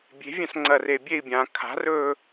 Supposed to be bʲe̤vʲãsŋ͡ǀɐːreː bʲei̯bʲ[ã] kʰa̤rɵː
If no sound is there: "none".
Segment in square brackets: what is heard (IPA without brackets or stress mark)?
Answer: ãː